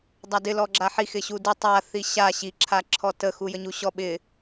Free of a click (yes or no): no